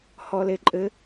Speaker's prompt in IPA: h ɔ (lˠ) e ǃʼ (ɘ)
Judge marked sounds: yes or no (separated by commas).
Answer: no, yes